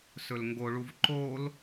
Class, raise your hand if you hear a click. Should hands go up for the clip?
yes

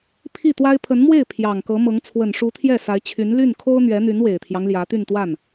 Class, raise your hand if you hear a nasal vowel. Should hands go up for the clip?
no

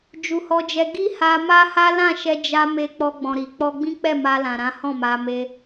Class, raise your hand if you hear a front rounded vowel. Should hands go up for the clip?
no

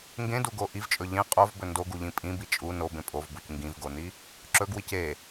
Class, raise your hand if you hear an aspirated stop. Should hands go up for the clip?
no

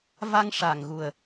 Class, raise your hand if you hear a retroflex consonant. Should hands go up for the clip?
yes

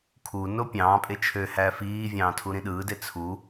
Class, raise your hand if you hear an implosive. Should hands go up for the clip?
yes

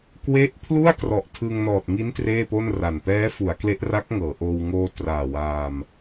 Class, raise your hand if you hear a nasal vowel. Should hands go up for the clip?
no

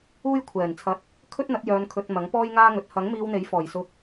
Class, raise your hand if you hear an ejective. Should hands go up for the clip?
no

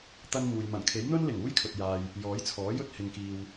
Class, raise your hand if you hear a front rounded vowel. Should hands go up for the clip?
no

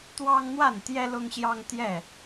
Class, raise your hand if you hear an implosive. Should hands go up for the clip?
no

